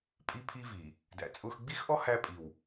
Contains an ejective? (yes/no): yes